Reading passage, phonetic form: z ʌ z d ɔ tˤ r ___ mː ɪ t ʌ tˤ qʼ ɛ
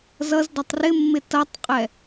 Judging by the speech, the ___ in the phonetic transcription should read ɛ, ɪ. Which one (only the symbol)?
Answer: ɪ